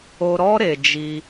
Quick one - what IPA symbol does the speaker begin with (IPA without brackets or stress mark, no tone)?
o